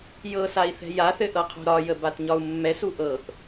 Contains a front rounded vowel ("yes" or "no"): no